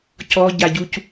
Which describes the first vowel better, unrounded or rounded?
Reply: rounded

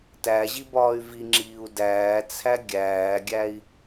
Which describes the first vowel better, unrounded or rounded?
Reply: unrounded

